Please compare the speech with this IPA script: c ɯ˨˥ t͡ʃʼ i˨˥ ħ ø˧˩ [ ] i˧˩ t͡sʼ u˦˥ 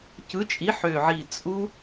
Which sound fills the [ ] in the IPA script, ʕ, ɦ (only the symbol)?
ʕ